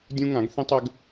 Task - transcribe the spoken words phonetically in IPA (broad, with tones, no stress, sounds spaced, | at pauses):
dʲ ũ˥ ŋ ã˨˥ ɡ θ ĩ˥ tˤ ʏ˨˥ ɡ